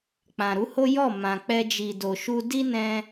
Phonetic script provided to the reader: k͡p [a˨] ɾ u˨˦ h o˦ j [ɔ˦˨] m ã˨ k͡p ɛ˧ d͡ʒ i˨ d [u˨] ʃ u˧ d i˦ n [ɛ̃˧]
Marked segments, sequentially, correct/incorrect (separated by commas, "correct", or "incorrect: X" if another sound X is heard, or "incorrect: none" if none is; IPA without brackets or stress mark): incorrect: ã˨, correct, incorrect: o˨, correct